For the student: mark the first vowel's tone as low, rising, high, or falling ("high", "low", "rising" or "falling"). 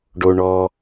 low